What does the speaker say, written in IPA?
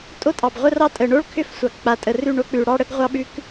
tʼo˦tʼɑ˨bʁʷə˦rɑ˦ tʼə˨ɳo˦ɭkʰʏ˦˨f sʷɑ˨kk͡pa˨tʼə˨ rʉ˦˨ɳo˦ k͡pʉ˨ɽɑ˦ɽə˦ɡ ʁʷɑ˦ɓʉ˦k

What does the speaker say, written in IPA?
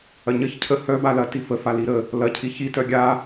ɐɲəç cʰə hœ balɐ tifəfa liɾə | lɐ cʰiçitœ ɡʲa

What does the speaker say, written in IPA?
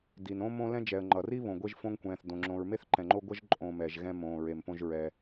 di˩nõ˥mõ˦ lɛ̃˥d͡ʒɛ˨ə̯ ŋ͡ǃʌ˩ri˥ βõ˨ɡʷe˦ʒfõ˦ŋkʷɛ̃ː˨θ dõ˩ŋ͡ǁõ˨ɹ me˥θǃɛ̃˨ŋ͡ǃo˦ ɡʷʌ˥ʒ ǃʼõ˨ mɛ˩ʒ ɣɛ̃˦mõː˩ ɹe˨mpõ˦ʒɹɛ˨

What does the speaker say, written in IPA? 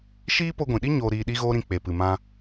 ʃiː˦po˧ɡʷĩ˨ɗi˦ ɲoː˧ɾiː˧ ɗi˦ɣoː˦ɾĩ˧ k͡pe˨pɨ˨mã˧

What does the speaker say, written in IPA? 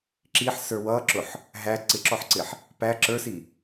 ǁiħsə˞ wʌǁʊħ | ɦæ ǀɪǁɔħǀɪħ | pæ ǁə˞si

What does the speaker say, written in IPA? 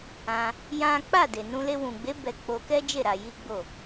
ã˧ | jã˦ k͡pa˦˨de˨ nũ˧le˧ wũ˨ɡ͡be˨˦ bɛ˧k͡po˧kɛ˦d͡ʒe˦˨ ɾa˧ji˦ɡ͡bo˦˨

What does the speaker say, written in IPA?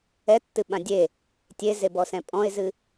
ɛtːɨɓã dʲe | tʲezebɔsɛ̃ pʼɔ̃ɪ̯zɨ

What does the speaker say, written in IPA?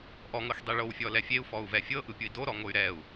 ʔɔŋɤxdˤi ɭowfʲɔlɛ fʲeu̯fɔu̯vɛ fʲɤʔɯpʲui̯ doɾɔŋoy̯ ɾɛu̯

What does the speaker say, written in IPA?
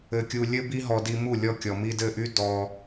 ɘ˧kʲu˧ lʲɘ˦bi˦ɦɔ˧ di˧mu˦˨lʲɔ˧ kʲɔ˨mi˧dɘ˦˨ʔy˦ dɔ˧

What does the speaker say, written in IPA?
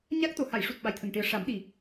ɲaː˦˥k̚t̪o˨˩ ha˨˩˨jʂu˨˩t̚ ɓa˨˩jt̪ʰə˨˩ŋʈi˨˩˦ə̯ ʂa˨˩˦mɗi˨˩

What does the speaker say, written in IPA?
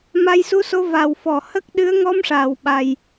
ma˧jsu˧so˧ va˨˩wfɔ˨˩˨ hə˦˥k̚ ɗɨ˧˥ə̯ŋɔ˧˥mʂaː˨˩˨w ɓa˨˩j

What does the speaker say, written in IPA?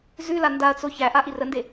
zʉla ndaɐ̯t͡so çæʔa ʔirənde

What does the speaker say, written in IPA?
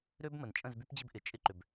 ɾø˦bmə˨n t͡ʃʼə̃˦˨zby˦pd͡ʑɪ˦bʔɪ˨ t͡ʃʼɪ˦ǃʏ˨b

